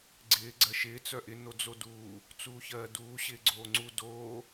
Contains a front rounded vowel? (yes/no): yes